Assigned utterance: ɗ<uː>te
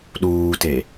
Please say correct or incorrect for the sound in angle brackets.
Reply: correct